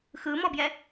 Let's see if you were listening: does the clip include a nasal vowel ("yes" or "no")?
no